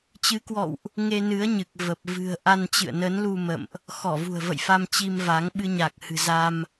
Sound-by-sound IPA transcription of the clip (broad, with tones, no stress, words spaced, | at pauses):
t͡ɕɨ˨˦kwɔ̰˧˨wʔ | ŋe˧nɨ˨˦ə̯ɲɨ˨˩k̚ və˨˩p̚ vɨ̤˨˩ə̯ ʔa˧nt͡ɕɨ̰˧˨ə̯ nə˨˦nlu˧ mə̰˧˨mʔ | xɔ˧˩vṳ˨˩ə̯və̰˧˨j fa˧mt͡ɕi˧mva˨˦ŋ ɓɨ˧ɲa˨˩k̚ hɨ̤˨˩za˧m